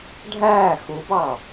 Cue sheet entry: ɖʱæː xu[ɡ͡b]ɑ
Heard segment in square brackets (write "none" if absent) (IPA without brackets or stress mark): b